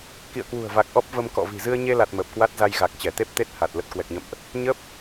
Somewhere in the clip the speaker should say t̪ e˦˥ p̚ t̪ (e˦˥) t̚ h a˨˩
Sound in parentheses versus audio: correct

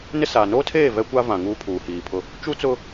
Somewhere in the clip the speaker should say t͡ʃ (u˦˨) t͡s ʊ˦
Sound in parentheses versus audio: incorrect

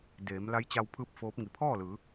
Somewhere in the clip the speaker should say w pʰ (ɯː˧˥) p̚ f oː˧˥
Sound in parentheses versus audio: correct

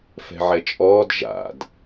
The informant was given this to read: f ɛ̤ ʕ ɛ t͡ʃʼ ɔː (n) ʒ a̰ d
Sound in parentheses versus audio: incorrect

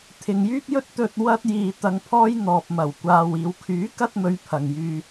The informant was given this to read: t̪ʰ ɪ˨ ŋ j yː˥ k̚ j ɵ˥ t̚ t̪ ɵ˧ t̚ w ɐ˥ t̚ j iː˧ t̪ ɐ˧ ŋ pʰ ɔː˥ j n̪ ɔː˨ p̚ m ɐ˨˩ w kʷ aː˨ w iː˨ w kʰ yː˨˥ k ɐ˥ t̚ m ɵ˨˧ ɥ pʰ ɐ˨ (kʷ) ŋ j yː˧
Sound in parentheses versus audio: incorrect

